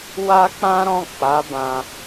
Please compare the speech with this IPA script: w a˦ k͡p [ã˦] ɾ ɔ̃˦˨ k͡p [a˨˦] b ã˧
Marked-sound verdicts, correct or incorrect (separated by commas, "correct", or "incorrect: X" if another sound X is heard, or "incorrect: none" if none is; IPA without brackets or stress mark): correct, correct